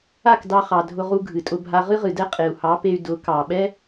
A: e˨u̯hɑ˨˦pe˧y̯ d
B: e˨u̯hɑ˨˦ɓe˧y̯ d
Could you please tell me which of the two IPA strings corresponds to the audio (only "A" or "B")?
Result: A